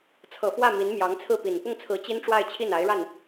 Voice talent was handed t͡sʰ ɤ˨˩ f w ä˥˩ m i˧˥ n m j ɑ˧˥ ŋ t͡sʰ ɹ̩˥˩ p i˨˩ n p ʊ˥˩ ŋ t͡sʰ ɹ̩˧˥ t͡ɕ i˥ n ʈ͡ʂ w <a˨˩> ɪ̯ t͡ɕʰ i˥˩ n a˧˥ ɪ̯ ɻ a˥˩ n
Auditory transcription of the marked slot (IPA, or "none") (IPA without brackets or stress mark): a˥˧